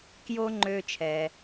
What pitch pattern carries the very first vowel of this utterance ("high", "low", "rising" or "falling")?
high